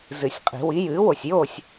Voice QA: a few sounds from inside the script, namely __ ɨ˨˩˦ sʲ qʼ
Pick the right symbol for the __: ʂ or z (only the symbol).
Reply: z